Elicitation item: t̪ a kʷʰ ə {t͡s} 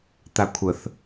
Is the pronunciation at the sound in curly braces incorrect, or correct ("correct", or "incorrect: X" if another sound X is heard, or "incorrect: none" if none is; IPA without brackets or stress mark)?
incorrect: θ